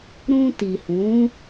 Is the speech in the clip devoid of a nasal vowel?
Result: no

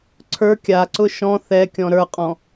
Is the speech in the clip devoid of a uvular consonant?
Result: no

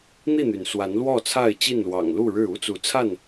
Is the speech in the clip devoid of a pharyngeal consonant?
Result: yes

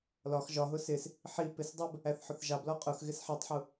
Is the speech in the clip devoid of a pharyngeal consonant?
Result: no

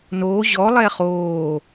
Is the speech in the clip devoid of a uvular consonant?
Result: no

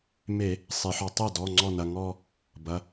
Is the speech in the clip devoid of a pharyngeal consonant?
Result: no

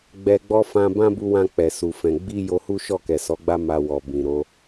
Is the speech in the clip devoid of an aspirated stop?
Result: yes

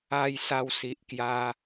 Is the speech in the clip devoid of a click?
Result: yes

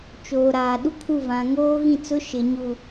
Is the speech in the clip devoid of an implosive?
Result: no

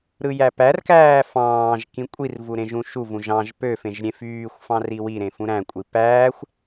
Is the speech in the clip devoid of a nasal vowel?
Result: no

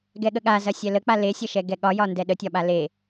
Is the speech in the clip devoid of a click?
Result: yes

